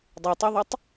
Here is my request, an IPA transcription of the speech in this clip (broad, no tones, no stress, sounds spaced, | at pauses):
dˤ e tˤ e ðˤ ɵ tˤ